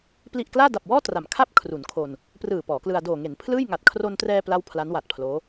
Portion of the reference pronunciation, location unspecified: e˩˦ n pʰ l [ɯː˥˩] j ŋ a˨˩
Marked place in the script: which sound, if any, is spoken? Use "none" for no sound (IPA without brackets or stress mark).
ɯː˥˩